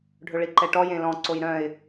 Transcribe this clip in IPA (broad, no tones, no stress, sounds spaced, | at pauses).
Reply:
ɖʱ ɵ ɭ i ǃ ɛ ʈ ɔ j ẽ l ɔ̃ ǀ o j ɾ œ̃ ɪ̯